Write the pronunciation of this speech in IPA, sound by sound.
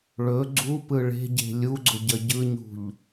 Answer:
ɭ ɵ ɡ͡ǀ u p ɯ ɭ e̤ ɟ e̤ lʲ u ɡ͡ǀ ʊ ɟ ə ɟ ɯ ɲ ṳ ʎ

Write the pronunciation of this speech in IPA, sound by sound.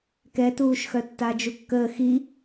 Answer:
k ɛ t uː ʃ x œ tː a d͡ʒ u kː əː x i

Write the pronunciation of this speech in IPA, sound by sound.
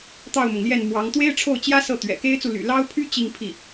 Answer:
t̪ ɑ˥˩ ʊ̯ m ʊ˩ ŋ l j ɛ˥˩ n m w ɑ˧˥ ŋ t̪ w e˥ ɪ̯ ʈ͡ʂʰ o˥˩ ʊ̯ t͡ɕ j ä˥ s ɤ˥˩ t̪ ɥ ɛ̰˨˩ k e˥ ɪ̯ t͡s u˨ l y̰˨˩ l ɑ˥ ʊ̯ pʰ y˥ t͡ɕ i˥˧ ŋ pʰ i˥˩

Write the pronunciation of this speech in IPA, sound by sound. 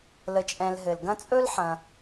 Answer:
l ə˨ t͡ʃʼ ɛ̃˨ l ɦ ɘ˩ l ɡ ɐ̃˦ t͡sʼ ɵ˥ l ħ ɐ̃˨

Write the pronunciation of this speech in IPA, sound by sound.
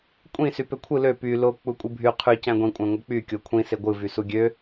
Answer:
kʷʼ ĩ s y p ø kʷʰ ɯ l ø p y l o k͡p u kʷʼ ɯ bʱ y qʰ y c æ̃ ɡʷ ĩ kʷʼ æ̃ ŋʷ ɯ k͡p y kʲ o kʷʰ ĩ s e ɡʷ ɯ v y s u ɡʲ ø

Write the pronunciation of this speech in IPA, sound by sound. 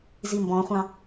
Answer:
z i m b ɔ̃ χʷ ɑ̃

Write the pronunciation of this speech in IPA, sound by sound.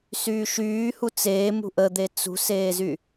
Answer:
s yː ʃ yː h u t͡s eː m ṳ ʔ ə d̪ e t͡s ṳ s eː z y

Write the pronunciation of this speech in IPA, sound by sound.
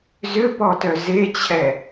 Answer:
z ʏ p ɔ t œ z e t͡ɕʰ ɛ

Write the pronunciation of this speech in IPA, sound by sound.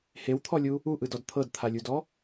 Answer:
h e w t̪ʰ ɔ lʲ u | u ʔ ɯ d ɔ d t̪ʰ ɤ d t̪ʰ a lʲ u d ɔ

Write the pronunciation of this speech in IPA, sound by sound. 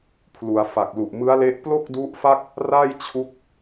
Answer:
pʰ l u˩˦ a̯ f a˨˩ k̚ l u˨˩ ʔ m ɯ˦˥ a̯ l e˦˥ ʔ p l o˥˩ k̚ d u˦˥ ʔ f a˥˩ k̚ | r a˥˩ j t͡ɕʰ u˦˥ k̚

